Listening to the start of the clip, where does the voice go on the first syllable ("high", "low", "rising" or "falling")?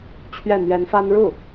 falling